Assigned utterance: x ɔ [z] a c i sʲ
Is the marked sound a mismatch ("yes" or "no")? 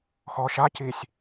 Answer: yes